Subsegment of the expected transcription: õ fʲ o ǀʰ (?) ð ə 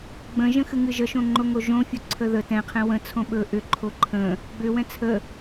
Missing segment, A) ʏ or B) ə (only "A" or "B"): B